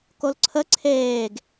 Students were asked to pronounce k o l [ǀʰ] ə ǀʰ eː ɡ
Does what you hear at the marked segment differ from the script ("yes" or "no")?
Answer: no